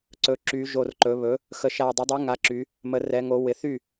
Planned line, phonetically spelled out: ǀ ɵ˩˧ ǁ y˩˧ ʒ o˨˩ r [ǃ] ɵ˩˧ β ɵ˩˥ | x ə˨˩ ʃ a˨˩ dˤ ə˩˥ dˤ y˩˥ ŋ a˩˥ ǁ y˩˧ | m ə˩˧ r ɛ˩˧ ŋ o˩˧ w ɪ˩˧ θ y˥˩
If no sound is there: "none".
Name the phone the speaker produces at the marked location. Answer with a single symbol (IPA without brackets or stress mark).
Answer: ǃ